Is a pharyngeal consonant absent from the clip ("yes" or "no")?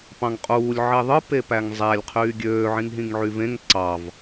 no